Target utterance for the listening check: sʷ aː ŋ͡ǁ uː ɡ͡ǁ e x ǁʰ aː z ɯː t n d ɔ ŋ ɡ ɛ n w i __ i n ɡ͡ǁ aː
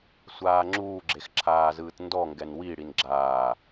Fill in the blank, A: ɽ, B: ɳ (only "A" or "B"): A